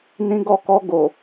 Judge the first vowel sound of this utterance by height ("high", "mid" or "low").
high